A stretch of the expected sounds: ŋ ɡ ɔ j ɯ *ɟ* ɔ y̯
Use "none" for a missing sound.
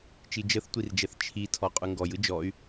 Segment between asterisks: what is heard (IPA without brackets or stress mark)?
d͡ʒ